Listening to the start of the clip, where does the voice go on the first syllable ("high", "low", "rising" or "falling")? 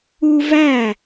high